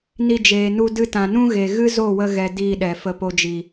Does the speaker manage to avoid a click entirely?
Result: yes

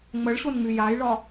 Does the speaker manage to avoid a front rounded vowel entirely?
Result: no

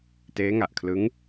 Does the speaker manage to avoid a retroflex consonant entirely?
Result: yes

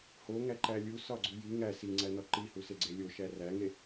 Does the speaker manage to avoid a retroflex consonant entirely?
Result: yes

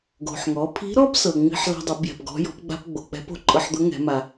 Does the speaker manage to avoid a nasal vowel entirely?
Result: yes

